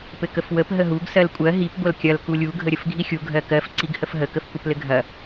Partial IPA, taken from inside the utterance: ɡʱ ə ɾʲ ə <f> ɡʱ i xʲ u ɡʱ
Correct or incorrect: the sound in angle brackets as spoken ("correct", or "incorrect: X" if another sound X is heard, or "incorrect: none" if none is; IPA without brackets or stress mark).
correct